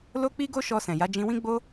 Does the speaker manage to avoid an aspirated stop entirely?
yes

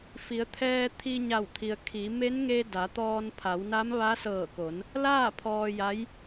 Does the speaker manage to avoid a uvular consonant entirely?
yes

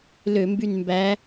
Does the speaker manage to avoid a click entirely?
yes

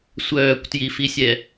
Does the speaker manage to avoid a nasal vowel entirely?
yes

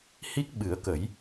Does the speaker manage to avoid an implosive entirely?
no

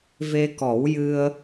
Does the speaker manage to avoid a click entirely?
yes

